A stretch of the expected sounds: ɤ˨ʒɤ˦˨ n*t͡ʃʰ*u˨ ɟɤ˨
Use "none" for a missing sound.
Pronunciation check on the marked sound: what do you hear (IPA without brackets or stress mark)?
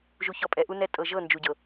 d͡ʒ